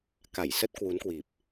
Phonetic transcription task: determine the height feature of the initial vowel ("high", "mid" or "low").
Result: low